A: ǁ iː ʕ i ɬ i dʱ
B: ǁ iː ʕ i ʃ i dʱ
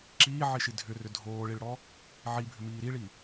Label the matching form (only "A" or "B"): B